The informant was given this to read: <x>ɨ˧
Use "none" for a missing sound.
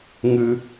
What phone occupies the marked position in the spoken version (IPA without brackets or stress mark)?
ŋ